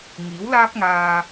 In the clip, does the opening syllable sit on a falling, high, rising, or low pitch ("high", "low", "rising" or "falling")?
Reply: rising